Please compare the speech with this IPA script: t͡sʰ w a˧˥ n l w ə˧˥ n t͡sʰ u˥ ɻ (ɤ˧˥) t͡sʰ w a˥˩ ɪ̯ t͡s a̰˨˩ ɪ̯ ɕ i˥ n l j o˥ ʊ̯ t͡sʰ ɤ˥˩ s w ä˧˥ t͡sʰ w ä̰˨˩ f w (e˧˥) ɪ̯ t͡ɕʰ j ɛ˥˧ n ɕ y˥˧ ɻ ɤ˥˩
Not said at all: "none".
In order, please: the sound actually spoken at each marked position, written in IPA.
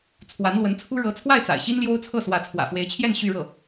ɤ˧˥, e˧˥

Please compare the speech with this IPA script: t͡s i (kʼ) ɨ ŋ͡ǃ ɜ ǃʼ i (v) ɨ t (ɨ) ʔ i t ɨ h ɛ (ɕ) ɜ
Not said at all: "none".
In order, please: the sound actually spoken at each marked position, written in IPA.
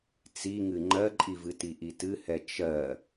ŋ, v, i, t͡ʃ

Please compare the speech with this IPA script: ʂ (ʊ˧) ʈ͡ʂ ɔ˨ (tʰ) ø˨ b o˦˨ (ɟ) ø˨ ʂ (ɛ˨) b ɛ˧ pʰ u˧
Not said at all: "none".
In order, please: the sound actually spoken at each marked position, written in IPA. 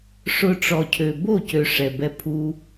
ʊ˧, cʰ, c, ɛ˨

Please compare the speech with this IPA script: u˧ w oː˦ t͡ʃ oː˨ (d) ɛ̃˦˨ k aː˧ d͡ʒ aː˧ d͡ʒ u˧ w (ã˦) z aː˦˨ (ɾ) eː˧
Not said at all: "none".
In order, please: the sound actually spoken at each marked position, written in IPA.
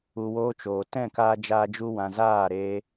t, ã˨, ɾ

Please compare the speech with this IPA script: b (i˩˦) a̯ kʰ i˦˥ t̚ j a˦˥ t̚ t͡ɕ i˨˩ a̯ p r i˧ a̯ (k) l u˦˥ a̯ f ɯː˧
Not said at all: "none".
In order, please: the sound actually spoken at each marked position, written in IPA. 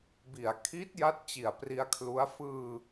i˩˦, kʰ

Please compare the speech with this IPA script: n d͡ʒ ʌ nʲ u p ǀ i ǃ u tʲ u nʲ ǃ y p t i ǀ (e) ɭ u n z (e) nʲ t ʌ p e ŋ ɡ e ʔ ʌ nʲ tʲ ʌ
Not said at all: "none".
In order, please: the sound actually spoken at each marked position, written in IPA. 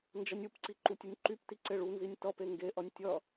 e, i

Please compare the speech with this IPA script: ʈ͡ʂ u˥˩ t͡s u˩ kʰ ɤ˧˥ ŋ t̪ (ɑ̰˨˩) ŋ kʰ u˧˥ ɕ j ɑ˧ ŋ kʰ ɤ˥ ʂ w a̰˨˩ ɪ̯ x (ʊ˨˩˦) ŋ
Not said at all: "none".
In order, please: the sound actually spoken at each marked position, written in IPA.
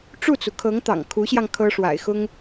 ɑ̰˨˩, ʊ˥

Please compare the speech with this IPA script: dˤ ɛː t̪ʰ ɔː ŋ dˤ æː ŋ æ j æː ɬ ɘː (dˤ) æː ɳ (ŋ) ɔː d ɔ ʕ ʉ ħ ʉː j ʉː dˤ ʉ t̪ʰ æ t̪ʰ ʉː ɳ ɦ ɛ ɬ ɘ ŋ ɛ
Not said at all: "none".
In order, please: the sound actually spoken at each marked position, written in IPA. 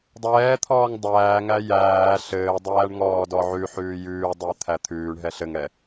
dˤ, ŋ

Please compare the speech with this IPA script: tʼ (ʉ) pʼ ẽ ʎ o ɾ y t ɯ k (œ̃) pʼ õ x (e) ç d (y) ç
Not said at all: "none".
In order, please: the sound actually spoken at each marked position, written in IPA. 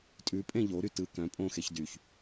ʉ, œ̃, e, y

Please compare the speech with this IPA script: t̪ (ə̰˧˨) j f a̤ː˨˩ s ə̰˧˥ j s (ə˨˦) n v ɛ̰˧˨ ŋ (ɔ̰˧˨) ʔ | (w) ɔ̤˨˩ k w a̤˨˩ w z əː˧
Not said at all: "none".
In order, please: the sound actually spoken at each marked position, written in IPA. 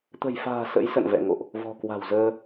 ə̤˨˩, ə̰˧˨, o̰˧˨, v

